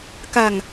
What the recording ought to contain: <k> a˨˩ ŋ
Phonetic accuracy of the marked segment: correct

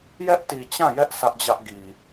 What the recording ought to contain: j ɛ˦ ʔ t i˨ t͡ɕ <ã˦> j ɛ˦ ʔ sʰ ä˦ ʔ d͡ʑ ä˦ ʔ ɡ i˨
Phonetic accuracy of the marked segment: incorrect: ã˦˨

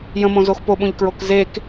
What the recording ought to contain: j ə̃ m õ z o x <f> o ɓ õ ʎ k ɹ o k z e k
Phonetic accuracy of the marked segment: incorrect: p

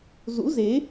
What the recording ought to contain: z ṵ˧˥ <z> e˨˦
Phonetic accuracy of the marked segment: correct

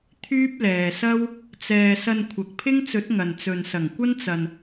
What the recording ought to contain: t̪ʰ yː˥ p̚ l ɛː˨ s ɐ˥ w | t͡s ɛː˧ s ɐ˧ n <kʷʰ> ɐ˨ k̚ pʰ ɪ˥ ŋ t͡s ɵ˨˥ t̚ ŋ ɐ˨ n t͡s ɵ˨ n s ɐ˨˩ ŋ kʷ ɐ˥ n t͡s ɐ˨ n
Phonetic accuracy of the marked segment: correct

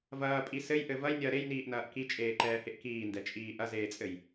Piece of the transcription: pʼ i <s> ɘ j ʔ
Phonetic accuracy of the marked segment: correct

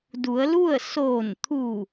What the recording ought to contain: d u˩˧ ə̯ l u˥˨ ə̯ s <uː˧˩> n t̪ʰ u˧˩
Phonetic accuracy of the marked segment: incorrect: oː˧˩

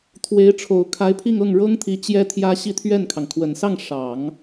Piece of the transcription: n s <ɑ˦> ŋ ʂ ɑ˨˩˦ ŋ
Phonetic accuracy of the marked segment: incorrect: ɑ˥˩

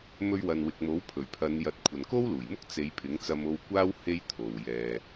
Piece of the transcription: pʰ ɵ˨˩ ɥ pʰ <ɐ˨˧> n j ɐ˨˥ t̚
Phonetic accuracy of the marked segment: correct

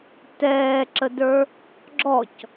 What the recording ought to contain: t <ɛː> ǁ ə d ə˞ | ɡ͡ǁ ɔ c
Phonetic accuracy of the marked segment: correct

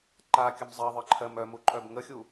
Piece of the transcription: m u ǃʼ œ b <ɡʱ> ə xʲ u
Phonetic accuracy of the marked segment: incorrect: ŋ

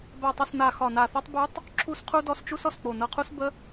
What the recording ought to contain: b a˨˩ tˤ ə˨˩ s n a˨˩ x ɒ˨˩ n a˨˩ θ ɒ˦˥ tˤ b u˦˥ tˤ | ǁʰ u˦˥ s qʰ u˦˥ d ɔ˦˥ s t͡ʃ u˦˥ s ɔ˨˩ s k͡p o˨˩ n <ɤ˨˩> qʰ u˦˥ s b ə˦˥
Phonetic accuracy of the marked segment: correct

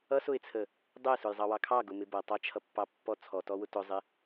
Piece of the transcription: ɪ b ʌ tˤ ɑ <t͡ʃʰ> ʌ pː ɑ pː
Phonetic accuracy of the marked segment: correct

